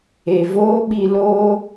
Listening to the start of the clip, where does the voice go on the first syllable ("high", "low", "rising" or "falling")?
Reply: low